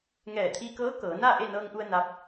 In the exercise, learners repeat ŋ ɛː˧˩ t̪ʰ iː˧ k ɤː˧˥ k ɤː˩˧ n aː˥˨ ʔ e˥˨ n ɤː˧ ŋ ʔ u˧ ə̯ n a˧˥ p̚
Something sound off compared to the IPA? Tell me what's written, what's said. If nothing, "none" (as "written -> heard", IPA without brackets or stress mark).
none